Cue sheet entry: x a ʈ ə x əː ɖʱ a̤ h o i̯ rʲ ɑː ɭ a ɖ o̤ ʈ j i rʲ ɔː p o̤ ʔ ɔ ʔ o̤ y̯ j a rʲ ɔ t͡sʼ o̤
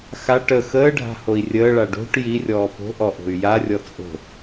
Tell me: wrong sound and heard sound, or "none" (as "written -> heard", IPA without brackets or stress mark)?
ɑː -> əː